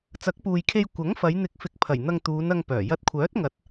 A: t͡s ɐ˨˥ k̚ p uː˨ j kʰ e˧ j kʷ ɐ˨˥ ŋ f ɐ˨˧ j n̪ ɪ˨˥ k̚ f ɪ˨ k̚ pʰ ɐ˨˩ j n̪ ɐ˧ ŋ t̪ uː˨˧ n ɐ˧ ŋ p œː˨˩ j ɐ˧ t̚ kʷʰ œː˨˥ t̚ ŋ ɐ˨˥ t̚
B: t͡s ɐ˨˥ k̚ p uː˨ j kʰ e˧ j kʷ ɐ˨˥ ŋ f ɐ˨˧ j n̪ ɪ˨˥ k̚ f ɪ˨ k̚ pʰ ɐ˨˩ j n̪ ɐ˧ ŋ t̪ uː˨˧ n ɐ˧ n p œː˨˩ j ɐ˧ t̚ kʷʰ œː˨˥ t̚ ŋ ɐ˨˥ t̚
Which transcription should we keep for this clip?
A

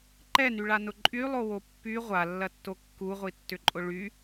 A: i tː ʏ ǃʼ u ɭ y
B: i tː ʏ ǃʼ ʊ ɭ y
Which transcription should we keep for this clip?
B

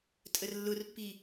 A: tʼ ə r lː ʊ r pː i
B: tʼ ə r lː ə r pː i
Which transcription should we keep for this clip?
A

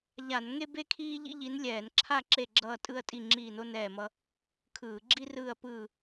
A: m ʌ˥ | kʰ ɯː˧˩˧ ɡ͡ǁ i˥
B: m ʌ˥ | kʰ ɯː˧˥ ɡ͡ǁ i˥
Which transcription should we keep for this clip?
A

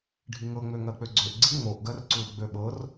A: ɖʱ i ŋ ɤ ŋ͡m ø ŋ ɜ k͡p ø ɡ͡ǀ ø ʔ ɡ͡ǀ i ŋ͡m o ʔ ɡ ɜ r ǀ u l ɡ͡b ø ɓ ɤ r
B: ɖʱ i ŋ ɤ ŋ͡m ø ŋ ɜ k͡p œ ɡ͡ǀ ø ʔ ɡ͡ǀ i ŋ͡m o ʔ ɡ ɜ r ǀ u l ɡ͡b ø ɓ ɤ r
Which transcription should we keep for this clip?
A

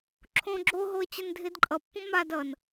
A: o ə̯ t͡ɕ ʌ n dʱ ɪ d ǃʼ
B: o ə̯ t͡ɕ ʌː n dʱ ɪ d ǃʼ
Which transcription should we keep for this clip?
A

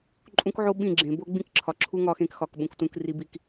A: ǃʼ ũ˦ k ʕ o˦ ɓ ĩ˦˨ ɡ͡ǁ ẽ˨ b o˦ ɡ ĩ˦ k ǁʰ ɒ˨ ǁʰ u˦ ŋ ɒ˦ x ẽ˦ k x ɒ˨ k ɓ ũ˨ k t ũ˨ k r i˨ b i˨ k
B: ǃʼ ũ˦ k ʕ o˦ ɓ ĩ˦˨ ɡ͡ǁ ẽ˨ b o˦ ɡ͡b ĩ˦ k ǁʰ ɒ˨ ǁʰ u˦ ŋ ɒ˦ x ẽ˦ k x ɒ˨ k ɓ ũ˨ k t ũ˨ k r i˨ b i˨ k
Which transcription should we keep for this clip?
B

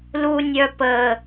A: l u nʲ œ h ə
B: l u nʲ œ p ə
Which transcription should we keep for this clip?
B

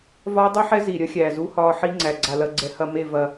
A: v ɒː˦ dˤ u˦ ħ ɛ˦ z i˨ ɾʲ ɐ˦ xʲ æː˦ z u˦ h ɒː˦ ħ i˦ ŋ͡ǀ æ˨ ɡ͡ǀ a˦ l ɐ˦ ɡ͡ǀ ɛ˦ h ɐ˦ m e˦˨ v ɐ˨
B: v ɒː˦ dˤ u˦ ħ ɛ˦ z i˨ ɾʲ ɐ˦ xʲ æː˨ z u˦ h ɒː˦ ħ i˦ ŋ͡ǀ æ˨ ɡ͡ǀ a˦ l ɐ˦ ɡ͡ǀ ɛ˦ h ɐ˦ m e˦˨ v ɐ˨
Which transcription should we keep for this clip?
B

